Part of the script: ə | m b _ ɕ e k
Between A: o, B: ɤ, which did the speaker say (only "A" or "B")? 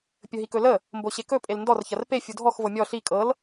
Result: A